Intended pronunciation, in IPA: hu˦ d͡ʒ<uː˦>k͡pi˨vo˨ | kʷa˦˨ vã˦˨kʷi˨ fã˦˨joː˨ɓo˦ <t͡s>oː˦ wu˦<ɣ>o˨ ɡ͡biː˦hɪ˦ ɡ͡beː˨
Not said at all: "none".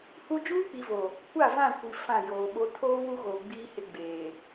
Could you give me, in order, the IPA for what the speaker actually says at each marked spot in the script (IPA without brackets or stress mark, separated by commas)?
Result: uː˦, tʰ, ɣ